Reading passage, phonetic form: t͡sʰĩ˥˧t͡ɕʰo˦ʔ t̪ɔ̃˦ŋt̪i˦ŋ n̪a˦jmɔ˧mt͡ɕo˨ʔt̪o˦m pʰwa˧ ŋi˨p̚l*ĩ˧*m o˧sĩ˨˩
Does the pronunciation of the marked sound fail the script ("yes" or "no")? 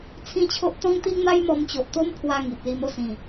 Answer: yes